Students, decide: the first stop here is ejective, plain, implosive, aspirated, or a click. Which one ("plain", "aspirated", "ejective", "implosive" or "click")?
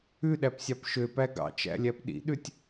implosive